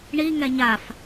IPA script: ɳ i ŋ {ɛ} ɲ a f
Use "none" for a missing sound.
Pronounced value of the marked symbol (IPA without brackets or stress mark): ɛ